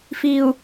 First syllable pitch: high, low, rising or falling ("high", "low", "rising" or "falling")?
low